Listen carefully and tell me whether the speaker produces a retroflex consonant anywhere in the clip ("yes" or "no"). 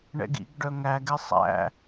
yes